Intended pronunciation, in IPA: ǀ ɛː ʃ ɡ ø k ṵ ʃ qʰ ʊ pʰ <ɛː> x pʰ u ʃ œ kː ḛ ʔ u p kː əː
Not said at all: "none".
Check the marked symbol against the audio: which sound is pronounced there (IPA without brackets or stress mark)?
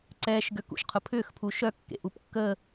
ʏː